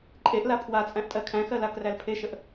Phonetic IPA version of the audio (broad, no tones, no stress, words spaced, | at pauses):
ǃʼeʔla pʰwat͡sʼæ̃ʔtʼɜ kʰæ̃xɜlakræl pʰeʃəʔ